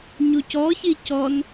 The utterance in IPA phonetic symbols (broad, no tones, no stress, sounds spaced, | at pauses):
ɲ u c ɔ ç i c ɔ n